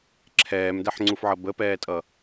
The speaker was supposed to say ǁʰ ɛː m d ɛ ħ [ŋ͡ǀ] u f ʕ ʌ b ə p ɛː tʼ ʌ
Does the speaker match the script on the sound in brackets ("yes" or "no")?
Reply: yes